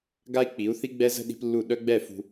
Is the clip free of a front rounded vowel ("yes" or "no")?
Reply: no